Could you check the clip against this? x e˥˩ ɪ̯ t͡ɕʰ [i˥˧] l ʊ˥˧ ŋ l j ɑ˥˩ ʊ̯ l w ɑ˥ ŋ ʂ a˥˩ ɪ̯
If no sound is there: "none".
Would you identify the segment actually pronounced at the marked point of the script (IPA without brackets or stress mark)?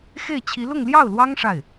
i˧˥